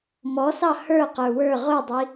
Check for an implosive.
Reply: absent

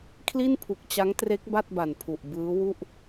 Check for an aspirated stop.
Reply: present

